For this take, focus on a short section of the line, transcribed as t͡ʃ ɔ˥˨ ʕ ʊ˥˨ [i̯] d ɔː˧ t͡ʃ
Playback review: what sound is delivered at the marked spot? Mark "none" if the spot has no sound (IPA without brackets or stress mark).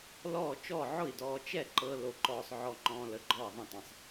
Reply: i̯